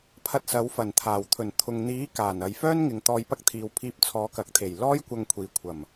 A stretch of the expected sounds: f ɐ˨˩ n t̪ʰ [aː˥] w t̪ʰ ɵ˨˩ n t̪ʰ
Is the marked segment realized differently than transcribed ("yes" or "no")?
yes